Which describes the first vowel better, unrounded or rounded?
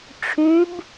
rounded